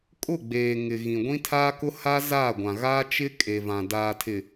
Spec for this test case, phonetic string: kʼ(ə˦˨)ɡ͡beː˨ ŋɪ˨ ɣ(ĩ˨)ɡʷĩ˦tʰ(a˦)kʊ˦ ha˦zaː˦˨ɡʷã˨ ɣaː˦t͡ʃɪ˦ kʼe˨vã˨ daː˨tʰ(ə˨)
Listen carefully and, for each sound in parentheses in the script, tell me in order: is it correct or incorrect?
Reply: incorrect, correct, incorrect, incorrect

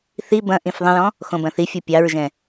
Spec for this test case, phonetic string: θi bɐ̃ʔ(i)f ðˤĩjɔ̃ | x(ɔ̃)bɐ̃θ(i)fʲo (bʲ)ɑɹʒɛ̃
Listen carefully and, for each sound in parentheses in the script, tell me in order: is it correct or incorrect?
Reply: incorrect, incorrect, correct, incorrect

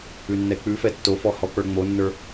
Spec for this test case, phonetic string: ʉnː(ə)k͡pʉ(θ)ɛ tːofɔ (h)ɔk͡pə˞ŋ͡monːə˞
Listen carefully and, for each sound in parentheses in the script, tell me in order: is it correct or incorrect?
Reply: incorrect, incorrect, correct

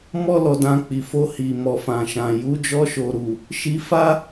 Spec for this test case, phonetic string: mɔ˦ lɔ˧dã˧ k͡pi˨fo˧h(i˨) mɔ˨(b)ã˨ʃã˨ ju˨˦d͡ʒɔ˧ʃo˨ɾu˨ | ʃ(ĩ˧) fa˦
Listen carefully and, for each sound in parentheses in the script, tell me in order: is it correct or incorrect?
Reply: correct, incorrect, incorrect

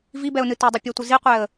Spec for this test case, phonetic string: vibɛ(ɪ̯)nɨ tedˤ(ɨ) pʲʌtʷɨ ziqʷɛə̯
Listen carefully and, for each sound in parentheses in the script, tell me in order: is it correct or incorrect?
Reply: incorrect, correct

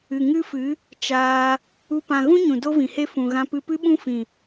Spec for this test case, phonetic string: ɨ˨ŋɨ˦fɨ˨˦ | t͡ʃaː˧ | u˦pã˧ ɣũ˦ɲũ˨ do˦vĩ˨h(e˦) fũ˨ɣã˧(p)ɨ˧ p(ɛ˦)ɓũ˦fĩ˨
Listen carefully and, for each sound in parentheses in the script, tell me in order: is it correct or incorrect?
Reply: correct, correct, incorrect

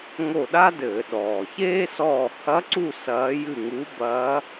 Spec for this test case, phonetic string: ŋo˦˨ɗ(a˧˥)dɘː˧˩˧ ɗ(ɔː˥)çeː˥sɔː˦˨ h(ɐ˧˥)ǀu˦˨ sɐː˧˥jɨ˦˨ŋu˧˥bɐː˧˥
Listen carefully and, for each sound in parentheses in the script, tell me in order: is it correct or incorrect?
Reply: incorrect, incorrect, correct

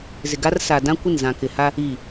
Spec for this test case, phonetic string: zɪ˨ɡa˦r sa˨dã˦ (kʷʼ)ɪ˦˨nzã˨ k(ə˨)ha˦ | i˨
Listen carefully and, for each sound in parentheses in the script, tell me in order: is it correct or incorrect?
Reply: incorrect, incorrect

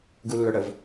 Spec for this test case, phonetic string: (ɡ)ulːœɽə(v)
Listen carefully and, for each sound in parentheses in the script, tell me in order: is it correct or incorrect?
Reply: correct, correct

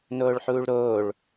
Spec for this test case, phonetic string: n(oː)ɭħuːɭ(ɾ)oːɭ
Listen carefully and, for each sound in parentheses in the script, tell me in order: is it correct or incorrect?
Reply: correct, correct

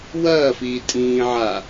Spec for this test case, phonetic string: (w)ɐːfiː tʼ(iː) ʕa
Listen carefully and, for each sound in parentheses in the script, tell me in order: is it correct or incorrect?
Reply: correct, incorrect

